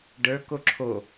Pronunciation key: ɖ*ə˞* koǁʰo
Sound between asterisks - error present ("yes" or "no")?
no